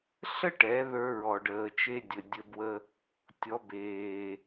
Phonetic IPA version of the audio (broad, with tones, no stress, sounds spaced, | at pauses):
ɬ ə˥ ʈ ɛ˩˧ ð ə˞˧ ɹ ɔ˩ ɖ əː˩ t͡ʃ e˧ dʲ ə˩ dʲ ə˧ b w ə˥ | tʲ ɔ˩˧ b eː˩